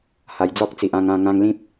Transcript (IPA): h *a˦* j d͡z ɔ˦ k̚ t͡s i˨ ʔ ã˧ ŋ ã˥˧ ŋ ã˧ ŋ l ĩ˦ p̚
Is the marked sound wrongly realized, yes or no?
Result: yes